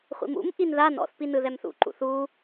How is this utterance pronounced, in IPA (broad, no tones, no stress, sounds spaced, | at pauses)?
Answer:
χʷ ḭ m ṵ m ʔ i n ð a n ɔ̰ θ p i n ɯ ð ɛ m θ ṵ ǃ ṵ θ u